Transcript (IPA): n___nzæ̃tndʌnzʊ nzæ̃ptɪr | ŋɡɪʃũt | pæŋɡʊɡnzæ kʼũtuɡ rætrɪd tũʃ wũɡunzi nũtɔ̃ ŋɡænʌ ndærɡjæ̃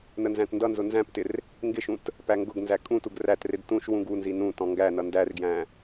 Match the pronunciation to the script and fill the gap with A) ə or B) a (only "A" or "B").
A